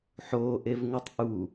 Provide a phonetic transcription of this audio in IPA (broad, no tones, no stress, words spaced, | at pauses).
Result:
ħoːʔevŋutˤ ʔu